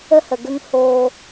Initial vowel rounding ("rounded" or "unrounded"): unrounded